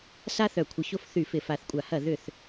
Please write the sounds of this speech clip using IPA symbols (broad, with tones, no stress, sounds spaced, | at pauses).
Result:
s a˦ θ œ˧˩ kʷʰ ɪ˨˦ ç o˦ f θ y˧˩ f ɪ˧˩ f a˧˩ θ kʷʼ a˧˩ h ɐ˥˩ ð ʏ˥˩ θ